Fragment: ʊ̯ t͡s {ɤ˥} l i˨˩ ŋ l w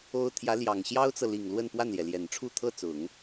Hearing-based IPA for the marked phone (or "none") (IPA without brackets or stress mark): ɤ˨